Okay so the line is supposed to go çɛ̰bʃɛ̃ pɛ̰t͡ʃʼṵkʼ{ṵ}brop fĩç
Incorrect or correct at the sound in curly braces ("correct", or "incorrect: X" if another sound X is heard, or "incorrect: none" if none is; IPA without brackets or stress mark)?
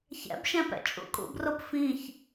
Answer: correct